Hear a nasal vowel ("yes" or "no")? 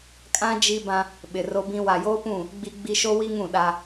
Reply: yes